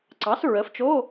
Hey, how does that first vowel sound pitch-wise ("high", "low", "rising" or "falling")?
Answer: rising